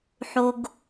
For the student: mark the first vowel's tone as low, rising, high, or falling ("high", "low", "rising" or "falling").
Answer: high